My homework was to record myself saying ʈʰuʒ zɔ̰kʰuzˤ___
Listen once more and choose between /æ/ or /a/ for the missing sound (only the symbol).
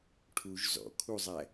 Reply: æ